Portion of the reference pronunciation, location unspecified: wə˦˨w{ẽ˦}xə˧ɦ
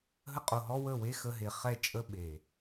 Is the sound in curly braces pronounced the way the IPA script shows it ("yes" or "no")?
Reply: no